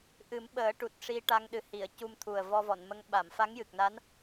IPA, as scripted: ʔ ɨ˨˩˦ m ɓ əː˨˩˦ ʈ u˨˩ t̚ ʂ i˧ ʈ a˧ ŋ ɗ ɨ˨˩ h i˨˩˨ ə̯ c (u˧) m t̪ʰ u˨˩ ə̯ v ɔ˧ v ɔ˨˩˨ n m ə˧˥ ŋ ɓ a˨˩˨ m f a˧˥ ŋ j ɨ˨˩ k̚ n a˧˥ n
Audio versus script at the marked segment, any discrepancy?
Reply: no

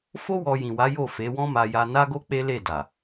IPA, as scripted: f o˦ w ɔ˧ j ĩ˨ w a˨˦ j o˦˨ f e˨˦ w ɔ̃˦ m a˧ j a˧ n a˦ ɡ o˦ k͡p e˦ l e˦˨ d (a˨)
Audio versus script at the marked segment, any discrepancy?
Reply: no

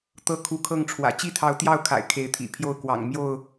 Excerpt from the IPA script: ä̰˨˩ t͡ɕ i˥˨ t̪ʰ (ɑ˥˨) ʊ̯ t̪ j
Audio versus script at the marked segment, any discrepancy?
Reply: yes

